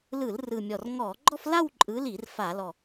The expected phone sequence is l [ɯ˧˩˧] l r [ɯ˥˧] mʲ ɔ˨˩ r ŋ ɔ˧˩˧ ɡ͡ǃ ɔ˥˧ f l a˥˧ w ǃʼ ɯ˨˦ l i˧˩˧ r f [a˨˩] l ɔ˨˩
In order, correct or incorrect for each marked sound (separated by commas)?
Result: correct, incorrect, incorrect